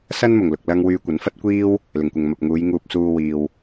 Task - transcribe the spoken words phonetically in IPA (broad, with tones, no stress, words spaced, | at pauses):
sɐ˥nmʊ˨˩ŋlʊ˨k̚lɐ˧ŋ wyː˧kʷɐ˨˥nfɐ˥t̚kʷiː˥w | lɪ˨˩ŋkʷɪ˨ŋ mɐ˨p̚ ŋuː˨˧jŋuː˧p̚suː˧wiː˨w